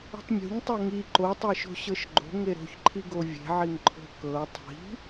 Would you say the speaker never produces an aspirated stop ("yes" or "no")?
no